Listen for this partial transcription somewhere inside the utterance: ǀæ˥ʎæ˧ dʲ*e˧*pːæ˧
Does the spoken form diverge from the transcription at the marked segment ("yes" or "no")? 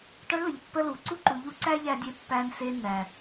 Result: no